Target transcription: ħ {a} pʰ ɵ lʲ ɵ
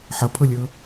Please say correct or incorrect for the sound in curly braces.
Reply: incorrect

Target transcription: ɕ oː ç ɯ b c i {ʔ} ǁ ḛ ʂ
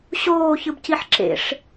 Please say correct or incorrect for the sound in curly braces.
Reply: incorrect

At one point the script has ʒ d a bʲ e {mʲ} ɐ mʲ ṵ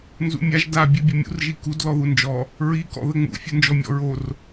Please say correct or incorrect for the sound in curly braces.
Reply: incorrect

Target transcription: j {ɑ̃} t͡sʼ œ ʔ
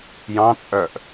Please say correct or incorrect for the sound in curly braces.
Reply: correct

